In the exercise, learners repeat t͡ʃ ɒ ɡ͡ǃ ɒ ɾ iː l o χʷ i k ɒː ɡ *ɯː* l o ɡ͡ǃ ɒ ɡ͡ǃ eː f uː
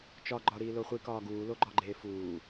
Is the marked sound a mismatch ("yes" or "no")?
yes